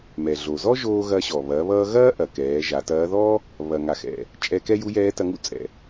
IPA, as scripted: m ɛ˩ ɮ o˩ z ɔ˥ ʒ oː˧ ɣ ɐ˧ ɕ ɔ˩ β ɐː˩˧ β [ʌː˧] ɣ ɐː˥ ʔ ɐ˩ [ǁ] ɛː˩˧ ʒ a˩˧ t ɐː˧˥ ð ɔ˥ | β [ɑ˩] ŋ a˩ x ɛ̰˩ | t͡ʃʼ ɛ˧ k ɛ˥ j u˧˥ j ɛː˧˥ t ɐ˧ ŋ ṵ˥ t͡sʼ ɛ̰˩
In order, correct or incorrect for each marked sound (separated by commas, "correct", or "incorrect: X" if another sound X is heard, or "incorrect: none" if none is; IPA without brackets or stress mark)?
correct, incorrect: k, incorrect: ɐ˩